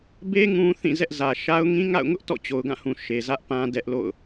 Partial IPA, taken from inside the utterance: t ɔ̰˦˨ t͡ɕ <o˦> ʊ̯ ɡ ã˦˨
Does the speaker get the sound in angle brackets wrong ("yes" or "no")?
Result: yes